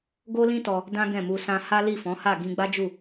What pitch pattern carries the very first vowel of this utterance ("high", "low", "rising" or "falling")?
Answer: high